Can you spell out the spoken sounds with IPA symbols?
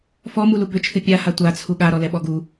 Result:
f ɔ m u l u b ʏ t͡ʃʰ ɨ pʲ a h a tʷ a t͡sʰ u ɠ a ɾ ɔ l ɛ ɓ ɔ ɡ u

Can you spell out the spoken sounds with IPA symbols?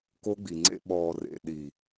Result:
k o˦ ɡ͡b i˨ ŋ͡ǀ ḛ˦ ɓ ɔː˨ r ḛ˨ ɗ i˨

